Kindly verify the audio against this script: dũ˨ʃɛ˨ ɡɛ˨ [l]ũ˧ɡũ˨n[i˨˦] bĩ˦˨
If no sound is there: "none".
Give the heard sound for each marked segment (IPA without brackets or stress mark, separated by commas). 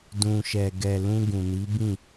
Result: l, i˨˦